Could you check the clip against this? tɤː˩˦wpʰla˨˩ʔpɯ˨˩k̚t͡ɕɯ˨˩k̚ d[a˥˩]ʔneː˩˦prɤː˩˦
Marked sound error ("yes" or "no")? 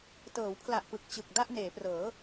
no